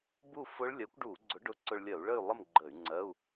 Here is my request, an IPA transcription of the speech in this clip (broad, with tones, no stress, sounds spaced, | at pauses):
b u˥˨ f ʊ˦˥ ɭ lʲ ɜ˨˥ kʷ ɖ u˧˩˧ ɡ͡ǀ ʊ˨˥ ɖ ʊ˧˥˧ ǀ ʊ˧ ɭ lʲ ɜ˧˩˧ u̯ ɭ ə˥˨ y̯ lˠ ə˥˨ m ɡ͡ǃ ə˧˩˧ y̯ ŋ͡ǀ ɜ˧˥˧ u̯